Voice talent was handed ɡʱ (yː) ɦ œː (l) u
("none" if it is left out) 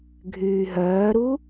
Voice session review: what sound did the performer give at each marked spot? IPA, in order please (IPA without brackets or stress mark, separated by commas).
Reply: yː, ɾ